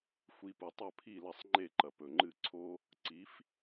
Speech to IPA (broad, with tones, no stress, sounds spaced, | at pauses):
xʷ i˧ p u˩ tˤ ɵ˥˩ pʰ i˥˩ l ɐ˥˩ sˤ ŋ͡ǃ e˥˩ ǃ ɐ˩ p ɵ˩ ŋ͡ǃ ɨ˥˩ ǀʰ o˥ | ǀ i˩˥ f